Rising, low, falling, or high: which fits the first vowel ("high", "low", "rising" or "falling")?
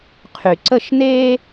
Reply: low